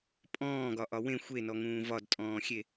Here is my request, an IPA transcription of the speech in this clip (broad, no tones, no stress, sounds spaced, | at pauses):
pʼ ɔ̃ː ɡ ɒ ʔ ɒ w ẽ xʷ e n ɔ ŋ ũː v ɒ d tʼ ɔ̃ː xʲ e